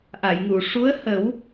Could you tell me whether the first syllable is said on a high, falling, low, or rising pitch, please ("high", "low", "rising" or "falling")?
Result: low